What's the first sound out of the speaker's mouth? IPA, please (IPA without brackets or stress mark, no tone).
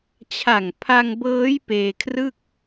t͡ɕʰ